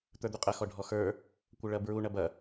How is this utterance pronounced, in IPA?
t̪ ə˞ d̪ u qʼ ɐ x ɔ ɖʱ ɔ x ə˞ | kʷ ə ɭ ɐ b ɹ u ɳ ɐ b ɐ

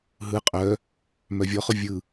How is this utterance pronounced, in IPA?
ɦ ɯ qʼ œ | m œ vʲ ɔ χ ʊ vʲ ɯ

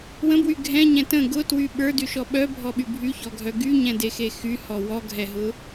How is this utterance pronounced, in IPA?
w ə̃ b w y ɡʱ ɛ̃ ɲ ɛ̃ t ə̃ ɡ ʊ t w y ɓ ə˞ d y ʃ ɔ ɓ œ bʱ ɔ ɓ y bʱ y ç ɔ ɡʱ œ ɡ y ɲ ɛ̃ d e x e x y h ɔ w ɔ ɡʱ ɛ ɦ ʊ

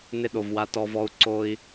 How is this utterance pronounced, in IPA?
n ɪ˦ ɗ o˨ v w a˦ t ɔ˦ v ɔ˦ u̯ ǀ o˦ i̯

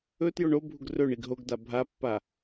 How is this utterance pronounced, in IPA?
ɵ t j o ɳ o bʱ u ɡ r ɵ ɳ i ɡ ɦ o ɡ d a bʱ a pː a

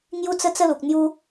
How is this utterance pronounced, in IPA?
ŋ j u˦ t͡s ə˦ t͡s ə˦ l u˨ k̚ n̪ j u˦

